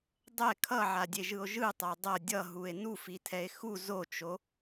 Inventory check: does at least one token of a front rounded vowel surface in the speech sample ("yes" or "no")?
no